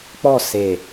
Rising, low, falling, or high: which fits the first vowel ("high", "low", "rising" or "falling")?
falling